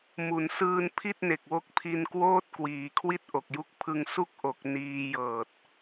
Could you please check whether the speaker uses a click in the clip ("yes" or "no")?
no